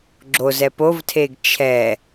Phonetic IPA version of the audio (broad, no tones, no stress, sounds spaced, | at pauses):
ɡ͡ǁ o z ɛ p o v tʰ e ɡ t͡ʃʰ ɛ